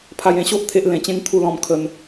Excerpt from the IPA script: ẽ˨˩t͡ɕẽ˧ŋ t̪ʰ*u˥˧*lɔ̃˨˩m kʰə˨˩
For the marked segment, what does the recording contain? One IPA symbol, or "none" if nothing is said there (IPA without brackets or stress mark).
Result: u˨˩